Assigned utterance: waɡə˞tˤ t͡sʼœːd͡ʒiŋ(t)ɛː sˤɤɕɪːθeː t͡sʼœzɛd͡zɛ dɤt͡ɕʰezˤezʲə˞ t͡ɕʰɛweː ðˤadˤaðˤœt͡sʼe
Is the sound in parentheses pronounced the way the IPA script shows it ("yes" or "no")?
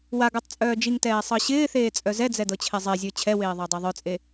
yes